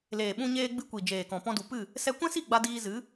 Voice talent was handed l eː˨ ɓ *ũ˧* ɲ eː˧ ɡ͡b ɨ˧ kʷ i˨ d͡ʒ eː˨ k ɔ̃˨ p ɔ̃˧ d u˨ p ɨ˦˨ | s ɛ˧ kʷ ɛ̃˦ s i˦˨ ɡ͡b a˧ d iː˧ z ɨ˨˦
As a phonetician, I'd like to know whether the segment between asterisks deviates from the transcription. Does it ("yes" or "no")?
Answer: no